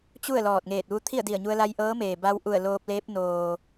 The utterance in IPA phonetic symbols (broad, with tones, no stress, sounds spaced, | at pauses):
t͡ɕ u˥˨ ə̯ l ɔː˧˩ t̚ ŋ eː˧˩ t̚ ʋ u˧˥ t̪ʰ i˥˨ ə̯ d i˧˩ ə̯ ɲ u˧ ə̯ l a˧ j ʔ ɤː˧˥ m eː˩ b a˧ w ʔ u˧˩ ə̯ l oː˧ p̚ l eː˧˥ p̚ n oː˩